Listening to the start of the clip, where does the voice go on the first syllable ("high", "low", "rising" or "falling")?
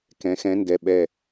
rising